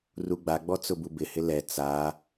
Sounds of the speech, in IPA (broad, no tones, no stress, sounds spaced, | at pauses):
r u ɡ͡b a ɡ͡b ɔ t͡s ʊ b u b ɪ h ɪ l ɛ t͡s a